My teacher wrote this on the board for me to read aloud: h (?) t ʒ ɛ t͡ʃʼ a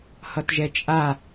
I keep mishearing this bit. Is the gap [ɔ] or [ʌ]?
ʌ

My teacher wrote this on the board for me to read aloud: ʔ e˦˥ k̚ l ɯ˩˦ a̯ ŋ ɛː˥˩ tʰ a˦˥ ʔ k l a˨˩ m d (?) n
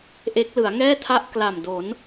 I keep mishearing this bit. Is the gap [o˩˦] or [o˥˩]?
o˩˦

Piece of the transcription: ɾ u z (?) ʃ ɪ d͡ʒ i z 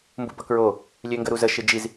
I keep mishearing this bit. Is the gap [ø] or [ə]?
ə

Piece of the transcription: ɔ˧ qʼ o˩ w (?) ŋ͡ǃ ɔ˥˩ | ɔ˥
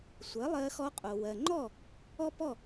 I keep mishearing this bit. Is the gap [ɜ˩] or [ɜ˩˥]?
ɜ˩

